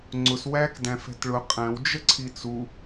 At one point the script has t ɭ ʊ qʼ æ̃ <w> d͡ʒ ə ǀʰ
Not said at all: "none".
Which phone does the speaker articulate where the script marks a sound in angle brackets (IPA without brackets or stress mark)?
w